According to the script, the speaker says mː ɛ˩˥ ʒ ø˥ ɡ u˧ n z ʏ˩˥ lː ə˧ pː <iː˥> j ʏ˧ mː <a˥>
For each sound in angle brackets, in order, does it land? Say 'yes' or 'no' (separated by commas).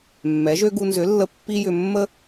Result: no, no